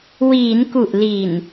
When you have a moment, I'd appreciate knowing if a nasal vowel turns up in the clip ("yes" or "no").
no